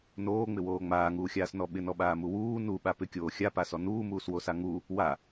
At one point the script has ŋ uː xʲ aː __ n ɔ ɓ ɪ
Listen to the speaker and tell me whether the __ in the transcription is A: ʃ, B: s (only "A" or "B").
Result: B